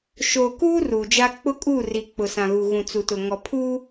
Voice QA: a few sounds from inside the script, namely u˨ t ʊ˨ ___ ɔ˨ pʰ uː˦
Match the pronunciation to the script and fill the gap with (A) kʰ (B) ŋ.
B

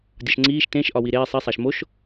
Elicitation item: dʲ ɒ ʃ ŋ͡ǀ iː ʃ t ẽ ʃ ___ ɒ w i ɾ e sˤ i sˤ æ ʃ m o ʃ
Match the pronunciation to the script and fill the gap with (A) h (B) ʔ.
B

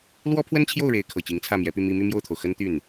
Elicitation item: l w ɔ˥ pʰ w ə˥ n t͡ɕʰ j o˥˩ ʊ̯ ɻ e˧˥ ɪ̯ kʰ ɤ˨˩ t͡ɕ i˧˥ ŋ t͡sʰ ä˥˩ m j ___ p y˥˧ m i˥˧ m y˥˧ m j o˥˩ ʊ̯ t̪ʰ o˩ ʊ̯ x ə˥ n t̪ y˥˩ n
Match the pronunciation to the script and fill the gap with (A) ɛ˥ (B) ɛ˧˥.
B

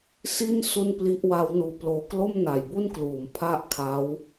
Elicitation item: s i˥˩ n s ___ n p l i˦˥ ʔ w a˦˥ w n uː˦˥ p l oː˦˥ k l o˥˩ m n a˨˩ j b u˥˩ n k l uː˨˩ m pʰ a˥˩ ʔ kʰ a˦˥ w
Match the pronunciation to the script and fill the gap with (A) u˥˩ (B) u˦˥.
A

